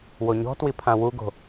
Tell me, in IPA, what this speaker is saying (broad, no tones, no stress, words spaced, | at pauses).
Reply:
woɲɔ̤twi pʰãwuɡo̤